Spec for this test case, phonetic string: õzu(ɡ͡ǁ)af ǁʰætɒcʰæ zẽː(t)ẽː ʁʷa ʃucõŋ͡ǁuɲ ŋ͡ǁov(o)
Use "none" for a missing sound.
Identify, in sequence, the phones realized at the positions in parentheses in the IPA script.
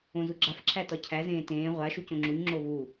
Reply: ɡ͡ǁ, t, u

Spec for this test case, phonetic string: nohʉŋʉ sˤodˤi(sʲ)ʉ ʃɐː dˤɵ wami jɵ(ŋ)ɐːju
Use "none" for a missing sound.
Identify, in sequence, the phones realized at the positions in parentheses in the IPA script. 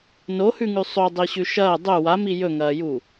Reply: ɕ, ŋ

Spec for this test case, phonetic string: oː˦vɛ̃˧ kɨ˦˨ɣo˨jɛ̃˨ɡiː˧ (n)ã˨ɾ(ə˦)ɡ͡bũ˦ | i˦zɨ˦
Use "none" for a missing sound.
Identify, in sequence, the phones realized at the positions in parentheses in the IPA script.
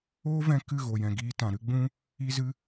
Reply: t, ɨ˦

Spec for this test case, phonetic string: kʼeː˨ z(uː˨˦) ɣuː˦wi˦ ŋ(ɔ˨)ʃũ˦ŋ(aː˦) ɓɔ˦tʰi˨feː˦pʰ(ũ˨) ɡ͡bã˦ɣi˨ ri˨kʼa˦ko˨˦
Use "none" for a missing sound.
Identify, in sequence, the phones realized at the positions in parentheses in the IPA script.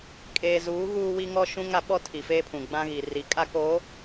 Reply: uː˨˦, ɔ˦, a˦, ũ˨

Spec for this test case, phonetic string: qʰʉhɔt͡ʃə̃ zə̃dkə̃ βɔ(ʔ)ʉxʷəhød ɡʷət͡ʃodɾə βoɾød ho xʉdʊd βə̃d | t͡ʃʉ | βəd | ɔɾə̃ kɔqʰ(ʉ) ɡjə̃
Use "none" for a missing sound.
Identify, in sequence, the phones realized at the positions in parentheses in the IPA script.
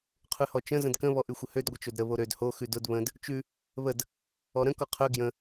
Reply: ʔ, ø

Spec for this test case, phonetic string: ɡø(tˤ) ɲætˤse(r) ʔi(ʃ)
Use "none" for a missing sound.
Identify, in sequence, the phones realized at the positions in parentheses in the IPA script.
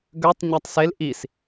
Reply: tˤ, l, s

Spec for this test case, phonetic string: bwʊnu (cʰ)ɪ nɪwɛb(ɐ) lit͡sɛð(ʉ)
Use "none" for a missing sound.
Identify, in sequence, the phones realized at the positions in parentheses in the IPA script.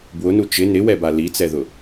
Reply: t͡ʃ, a, ʊ

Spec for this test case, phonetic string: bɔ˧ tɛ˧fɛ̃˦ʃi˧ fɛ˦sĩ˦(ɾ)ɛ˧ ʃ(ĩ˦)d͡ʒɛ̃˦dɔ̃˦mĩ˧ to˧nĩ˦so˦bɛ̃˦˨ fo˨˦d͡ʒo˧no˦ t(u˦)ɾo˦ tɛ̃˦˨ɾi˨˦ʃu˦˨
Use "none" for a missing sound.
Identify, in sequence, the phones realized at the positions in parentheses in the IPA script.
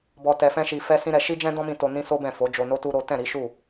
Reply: ɾ, i˦, u˦

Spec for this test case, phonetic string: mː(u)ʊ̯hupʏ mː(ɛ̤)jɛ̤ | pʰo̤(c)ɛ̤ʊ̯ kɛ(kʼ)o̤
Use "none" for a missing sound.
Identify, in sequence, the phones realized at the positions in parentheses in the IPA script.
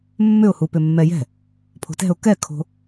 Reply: ʏ, ɛ, t, kʰ

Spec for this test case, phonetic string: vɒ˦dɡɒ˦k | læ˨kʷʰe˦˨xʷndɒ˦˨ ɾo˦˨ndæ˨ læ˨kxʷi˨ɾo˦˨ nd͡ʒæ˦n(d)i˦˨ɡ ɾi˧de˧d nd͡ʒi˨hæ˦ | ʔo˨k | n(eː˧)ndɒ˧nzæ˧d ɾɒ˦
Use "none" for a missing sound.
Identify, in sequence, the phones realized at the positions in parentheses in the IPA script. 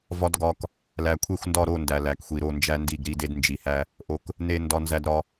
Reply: d, e˧

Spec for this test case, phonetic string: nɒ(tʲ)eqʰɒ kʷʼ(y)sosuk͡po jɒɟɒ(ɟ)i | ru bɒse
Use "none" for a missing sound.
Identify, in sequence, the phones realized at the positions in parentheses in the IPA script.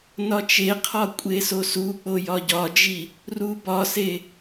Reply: t͡ʃ, e, d͡ʒ

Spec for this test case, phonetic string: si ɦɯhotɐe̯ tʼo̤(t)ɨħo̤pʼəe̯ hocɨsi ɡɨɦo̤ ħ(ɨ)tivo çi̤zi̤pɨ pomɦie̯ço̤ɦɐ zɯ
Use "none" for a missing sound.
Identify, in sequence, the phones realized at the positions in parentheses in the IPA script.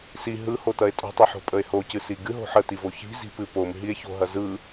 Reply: tˤ, ə

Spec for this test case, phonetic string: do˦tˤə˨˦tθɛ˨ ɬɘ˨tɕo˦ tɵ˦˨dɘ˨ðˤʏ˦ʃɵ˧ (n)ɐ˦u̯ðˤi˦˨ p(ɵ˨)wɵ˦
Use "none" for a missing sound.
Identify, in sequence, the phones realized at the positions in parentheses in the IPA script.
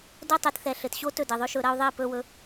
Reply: ɾ, ɵ˦

